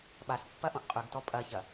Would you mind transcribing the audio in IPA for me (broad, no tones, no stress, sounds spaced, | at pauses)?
ɓ a s pː ɐ ʔ õ ʔ qʼ ʉ ɡ t ɔ pʼ ɐ ç ɐ